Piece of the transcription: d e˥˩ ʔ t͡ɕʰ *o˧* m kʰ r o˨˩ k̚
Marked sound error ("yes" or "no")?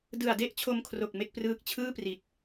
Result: no